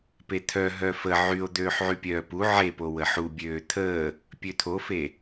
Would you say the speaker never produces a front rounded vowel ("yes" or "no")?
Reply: no